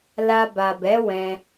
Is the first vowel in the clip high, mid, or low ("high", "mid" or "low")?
low